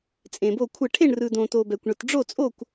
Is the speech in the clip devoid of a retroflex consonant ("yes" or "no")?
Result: no